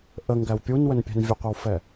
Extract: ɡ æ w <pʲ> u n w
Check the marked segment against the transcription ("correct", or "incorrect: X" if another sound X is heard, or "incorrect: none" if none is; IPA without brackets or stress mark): correct